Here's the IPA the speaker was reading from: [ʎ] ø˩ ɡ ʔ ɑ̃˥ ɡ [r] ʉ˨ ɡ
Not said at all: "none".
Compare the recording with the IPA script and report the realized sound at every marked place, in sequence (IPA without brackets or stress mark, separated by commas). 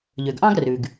ʎ, r